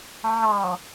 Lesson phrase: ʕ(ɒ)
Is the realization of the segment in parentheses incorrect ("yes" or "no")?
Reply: yes